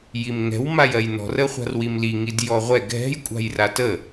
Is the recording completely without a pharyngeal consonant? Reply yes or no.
yes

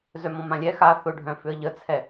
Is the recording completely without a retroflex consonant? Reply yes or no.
no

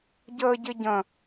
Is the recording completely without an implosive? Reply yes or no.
yes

